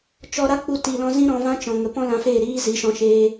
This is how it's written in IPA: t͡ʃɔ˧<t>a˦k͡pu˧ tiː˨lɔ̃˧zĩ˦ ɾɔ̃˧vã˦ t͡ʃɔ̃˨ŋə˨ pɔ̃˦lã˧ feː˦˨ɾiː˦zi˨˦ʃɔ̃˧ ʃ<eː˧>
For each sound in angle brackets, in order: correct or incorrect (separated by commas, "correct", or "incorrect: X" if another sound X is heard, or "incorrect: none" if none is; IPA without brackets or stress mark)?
incorrect: ɾ, correct